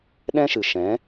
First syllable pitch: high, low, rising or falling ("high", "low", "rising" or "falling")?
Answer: high